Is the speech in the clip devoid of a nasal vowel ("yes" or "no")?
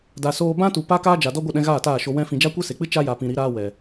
no